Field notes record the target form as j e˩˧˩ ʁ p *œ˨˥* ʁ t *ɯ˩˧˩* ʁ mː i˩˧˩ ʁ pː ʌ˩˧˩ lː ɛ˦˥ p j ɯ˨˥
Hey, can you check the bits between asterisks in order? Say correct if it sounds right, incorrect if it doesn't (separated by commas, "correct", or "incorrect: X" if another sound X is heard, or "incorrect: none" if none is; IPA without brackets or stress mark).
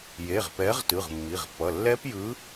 incorrect: ɛ˨˥, correct